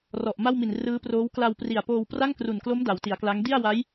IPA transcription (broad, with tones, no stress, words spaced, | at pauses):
rɔ˨˩ʔma˥˩wmi˨˩n rɯː˦˥proː˦˥w kla˧wpri˨˩a̯ poː˧wpra˥˩ŋkru˨˩nklo˦˥m da˩˦wti˩˦a̯kla˦˥ŋ di˥˩a̯wa˦˥j